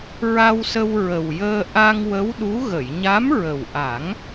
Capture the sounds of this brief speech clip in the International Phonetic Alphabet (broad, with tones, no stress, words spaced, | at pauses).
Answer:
ɹa˧wsə˧w ɹə˨˩wjəː˧ ʔa˧ŋwə˧˥wɗu˧˥ ɣə˨˩˨jɲa˧˥mɹə˨˩wʔa˨˩˦ŋ